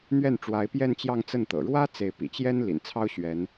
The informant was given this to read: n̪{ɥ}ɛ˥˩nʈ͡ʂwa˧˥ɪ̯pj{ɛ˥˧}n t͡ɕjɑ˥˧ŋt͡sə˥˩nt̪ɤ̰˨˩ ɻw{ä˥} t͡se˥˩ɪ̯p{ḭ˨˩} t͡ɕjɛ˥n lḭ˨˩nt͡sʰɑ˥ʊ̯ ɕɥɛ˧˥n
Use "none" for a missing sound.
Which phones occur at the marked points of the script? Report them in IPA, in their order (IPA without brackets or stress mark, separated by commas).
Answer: ɥ, ɛ˥˧, ä˥, ḭ˨˩